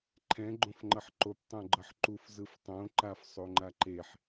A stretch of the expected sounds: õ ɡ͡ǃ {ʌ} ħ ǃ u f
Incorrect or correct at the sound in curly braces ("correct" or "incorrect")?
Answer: correct